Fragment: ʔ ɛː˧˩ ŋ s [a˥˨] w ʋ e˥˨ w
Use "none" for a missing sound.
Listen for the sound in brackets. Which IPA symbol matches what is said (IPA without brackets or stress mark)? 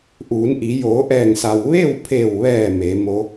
a˩